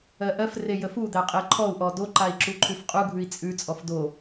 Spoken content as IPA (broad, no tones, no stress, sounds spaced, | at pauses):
ɜ ʔ ɜ f r e j ə f u d̪ æ qʼ e ǃʰ ɔ u̯ ʔ ɔ d o ǃ a i̯ ǁ u ǃʰ ʉ f qʼ u ɡʱ ʉ i̯ t͡sʼ ʉ t͡sʼ ɔ f d o